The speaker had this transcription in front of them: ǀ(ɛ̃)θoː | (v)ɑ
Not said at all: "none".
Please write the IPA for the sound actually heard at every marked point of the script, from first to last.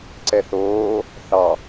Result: ɛ, θ

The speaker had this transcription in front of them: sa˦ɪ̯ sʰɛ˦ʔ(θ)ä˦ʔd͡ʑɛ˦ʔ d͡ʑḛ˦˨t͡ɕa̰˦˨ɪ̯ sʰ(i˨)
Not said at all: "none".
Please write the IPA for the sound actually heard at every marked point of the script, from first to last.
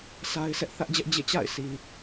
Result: θ, i˨

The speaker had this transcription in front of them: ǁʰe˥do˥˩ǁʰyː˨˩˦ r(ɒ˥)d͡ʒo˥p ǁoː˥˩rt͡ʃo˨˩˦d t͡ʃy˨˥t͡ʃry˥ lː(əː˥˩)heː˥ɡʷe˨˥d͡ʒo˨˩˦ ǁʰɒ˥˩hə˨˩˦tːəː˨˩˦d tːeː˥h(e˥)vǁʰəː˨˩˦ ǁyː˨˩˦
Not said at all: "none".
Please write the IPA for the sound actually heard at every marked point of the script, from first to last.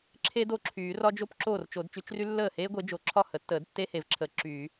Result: ɒ˥, əː˥˩, e˨˩˦

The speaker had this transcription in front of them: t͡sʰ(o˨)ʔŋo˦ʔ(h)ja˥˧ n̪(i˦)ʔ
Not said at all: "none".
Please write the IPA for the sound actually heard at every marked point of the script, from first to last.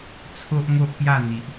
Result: o˦, p, i˨

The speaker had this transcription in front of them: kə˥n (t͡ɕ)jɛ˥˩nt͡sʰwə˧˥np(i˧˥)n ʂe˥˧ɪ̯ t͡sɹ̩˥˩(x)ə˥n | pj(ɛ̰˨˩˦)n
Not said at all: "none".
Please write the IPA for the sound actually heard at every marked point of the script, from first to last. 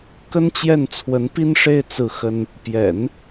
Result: t͡ɕ, i˥, x, ɛ̰˨˩˦

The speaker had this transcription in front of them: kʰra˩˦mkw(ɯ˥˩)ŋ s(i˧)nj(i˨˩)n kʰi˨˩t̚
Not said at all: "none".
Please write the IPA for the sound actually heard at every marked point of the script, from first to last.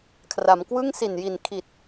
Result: ɯ˥˩, i˨˩, i˨˩

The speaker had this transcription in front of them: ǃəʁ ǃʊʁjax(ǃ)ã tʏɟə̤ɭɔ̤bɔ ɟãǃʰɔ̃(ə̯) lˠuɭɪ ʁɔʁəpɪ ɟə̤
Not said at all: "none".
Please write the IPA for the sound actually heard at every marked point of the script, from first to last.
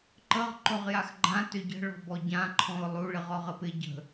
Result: ɡ͡ǃ, ʊ̯

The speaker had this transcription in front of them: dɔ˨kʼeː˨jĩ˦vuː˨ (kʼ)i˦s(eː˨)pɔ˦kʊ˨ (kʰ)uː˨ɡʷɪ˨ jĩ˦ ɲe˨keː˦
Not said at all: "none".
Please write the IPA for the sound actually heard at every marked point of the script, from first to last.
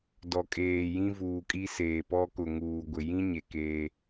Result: kʼ, eː˨, ŋ

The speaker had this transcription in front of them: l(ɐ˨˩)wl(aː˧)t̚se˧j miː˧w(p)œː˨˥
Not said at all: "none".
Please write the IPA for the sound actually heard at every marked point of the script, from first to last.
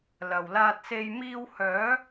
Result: ɐ˨˩, aː˧, h

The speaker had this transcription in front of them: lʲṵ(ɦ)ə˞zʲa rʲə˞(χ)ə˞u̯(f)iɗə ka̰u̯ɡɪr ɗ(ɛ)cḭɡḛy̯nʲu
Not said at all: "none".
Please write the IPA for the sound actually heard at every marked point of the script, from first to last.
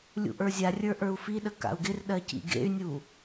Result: ʔ, ʔ, f, ɜ

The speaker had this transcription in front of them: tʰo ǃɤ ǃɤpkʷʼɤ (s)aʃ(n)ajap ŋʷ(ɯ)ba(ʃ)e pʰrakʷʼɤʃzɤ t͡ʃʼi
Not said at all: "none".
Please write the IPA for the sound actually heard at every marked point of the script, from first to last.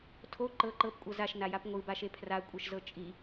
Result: z, n, ɯ, ʃ

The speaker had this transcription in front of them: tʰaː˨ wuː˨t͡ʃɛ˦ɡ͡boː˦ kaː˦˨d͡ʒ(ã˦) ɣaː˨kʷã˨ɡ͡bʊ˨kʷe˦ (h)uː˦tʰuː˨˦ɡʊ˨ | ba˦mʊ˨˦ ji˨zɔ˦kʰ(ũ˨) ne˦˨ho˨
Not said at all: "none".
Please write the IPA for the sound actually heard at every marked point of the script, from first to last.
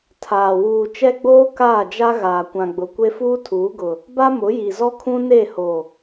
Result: a˦, f, ũ˦

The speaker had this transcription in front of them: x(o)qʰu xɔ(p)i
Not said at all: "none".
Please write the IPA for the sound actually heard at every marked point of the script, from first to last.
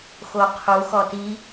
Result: o, t

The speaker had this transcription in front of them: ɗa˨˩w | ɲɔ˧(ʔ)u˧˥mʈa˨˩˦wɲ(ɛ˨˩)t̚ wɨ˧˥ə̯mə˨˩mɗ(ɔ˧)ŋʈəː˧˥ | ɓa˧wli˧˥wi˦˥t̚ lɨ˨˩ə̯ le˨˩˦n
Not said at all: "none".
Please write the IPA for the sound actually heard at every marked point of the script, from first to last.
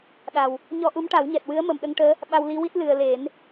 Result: ʔ, ɛ˨˩, ə˧

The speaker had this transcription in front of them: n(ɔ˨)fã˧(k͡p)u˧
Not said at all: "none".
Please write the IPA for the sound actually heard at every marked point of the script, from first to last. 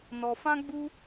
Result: ɔ˨, ɡ͡b

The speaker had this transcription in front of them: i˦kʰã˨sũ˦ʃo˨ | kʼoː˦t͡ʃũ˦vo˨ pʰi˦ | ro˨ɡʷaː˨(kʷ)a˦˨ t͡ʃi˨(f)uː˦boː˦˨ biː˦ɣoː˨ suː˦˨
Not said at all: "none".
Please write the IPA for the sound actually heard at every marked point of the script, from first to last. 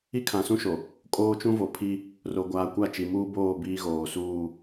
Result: kʷ, m

